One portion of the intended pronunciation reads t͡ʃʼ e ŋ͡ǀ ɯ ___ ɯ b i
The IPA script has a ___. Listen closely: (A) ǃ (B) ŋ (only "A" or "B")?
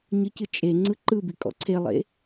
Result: A